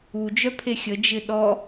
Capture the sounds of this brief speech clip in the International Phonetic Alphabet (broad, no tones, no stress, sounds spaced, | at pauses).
u d͡ʒ œ pʰ e xʲ ə d͡ʒ ɪ ɗ ɔ